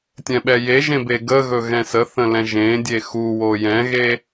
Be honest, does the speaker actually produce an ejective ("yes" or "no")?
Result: no